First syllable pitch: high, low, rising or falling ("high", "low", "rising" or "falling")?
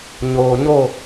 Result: low